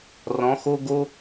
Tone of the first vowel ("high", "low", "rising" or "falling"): rising